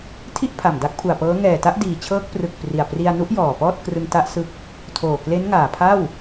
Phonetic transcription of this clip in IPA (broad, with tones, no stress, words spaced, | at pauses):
tʰi˥˩ʔpʰa˨˩m da˦˥k̚pʰu˨˩a̯pɤː˦˥ ŋɛː˨˩ta˦˥ʔdiː˨˩t͡ɕʰɤː˦˥k̚ prɯ˨˩k̚ pri˨˩a̯pri˧a̯ nu˦˥ʔjɔː˨˩ pɔː˥˩t̚krɯ˧ŋta˦˥ʔ sɯ˦˥k̚ | tʰoː˨˩kle˦˥nŋaː˨˩pʰa˥˩w